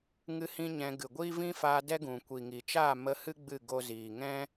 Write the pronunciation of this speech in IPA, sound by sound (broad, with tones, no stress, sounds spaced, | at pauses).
ŋ ɨ˦ h ĩ˦ ɲ ɛ̃˧ ɡ ɨ˨ ɡʷ i˦ v ĩ˦ f aː˧ d ɛ˦ ɡ ũ˨ kʷ i˨ ŋ i˨ t͡ʃ aː˦˨ m ə˧ h ɨ˦ ɡ͡b ɨ˦˨ ɡ o˦ z iː˨ ŋ ɛ̃˦